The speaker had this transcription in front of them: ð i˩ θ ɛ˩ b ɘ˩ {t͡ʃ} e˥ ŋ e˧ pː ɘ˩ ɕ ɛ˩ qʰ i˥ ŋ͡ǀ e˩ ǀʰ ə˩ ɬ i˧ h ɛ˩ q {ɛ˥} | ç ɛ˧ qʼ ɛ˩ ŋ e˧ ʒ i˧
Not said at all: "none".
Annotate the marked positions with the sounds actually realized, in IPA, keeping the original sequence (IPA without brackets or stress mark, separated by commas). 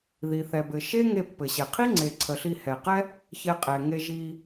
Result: ʃ, ɛ˥